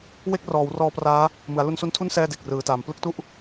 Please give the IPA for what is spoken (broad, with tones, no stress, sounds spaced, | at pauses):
w e˥˩ k̚ r ɔː˩˦ w r ɔː˧ p r aː˦˥ | m ɯ˩˦ a̯ l u˧ n s u˦˥ n tʰ u˥˩ n s ɛː˥˩ d e˨˩ k̚ r ɯː˩˦ t aː˩˦ m p l ɯ˦˥ k̚ t u˥˩ ʔ